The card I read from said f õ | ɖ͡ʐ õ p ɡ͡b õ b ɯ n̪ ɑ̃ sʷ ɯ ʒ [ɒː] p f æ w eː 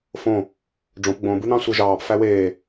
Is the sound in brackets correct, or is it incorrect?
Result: incorrect